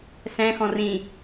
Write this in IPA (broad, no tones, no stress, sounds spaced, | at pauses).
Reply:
s ɛ̃ x ɔ̃ r ĩ